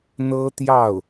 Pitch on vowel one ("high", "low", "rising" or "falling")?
high